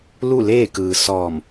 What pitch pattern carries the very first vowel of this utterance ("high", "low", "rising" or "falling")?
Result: falling